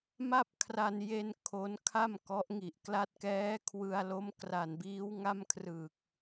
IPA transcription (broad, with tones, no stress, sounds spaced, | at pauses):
m a˥˩ p̚ kʰ r a˧ n j e˧ n kʰ o˦˥ n kʰ a˥˩ m k ɔ˦˥ ʔ ŋ i˨˩ ʔ k l a˦˥ t̚ k ɛː˦˥ kʰ w ɯ˧ a̯ l o˦˥ m k r a˨˩ n b iː˦˥ w ŋ a˥˩ m kʰ r ɯ˨˩ k̚